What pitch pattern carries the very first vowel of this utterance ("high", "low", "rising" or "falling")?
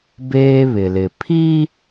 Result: high